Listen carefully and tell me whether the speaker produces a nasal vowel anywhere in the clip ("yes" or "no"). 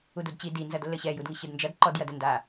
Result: no